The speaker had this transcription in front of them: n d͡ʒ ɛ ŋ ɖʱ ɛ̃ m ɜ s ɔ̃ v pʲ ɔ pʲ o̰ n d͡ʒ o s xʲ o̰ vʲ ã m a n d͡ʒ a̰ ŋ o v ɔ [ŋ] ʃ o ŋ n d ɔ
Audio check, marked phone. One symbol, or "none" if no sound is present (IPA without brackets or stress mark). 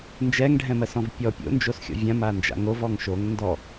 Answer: ŋ